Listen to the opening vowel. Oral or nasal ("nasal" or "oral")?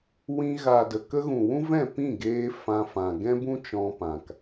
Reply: nasal